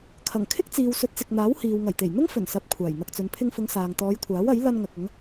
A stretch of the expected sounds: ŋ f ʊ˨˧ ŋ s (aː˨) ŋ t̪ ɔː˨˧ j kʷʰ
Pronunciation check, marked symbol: correct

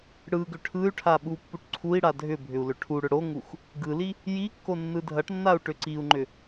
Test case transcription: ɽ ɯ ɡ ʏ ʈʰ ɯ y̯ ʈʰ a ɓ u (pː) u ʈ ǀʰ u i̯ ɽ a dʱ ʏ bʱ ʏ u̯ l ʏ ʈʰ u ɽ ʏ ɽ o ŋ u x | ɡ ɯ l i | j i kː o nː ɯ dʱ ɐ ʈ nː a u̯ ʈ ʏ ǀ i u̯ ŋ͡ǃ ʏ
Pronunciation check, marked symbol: correct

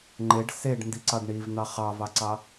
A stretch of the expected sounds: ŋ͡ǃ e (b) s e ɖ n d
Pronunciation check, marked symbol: incorrect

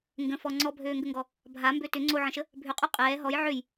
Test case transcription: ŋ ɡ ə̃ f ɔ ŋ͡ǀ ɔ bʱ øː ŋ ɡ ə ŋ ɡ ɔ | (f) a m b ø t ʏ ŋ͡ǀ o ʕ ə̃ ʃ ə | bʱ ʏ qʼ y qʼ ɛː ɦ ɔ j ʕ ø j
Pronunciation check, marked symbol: incorrect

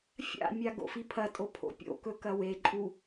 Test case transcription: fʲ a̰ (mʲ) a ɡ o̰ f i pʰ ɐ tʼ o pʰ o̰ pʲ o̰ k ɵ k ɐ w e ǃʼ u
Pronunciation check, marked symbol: correct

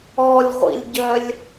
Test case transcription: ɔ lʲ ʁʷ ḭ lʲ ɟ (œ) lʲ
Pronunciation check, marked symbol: correct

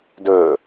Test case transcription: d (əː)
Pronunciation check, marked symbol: incorrect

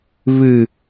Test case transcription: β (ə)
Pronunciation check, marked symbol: incorrect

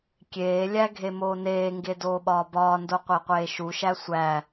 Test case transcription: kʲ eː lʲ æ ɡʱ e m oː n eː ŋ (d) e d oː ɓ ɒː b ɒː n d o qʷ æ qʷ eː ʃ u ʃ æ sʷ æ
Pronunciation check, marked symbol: incorrect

